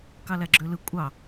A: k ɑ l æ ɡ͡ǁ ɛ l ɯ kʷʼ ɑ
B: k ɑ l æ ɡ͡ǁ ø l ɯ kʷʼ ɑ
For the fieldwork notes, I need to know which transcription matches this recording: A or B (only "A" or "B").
B